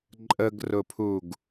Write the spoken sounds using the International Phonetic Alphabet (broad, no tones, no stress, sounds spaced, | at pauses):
ǃʼ ə ɡ r ʊ pʰ u ɡ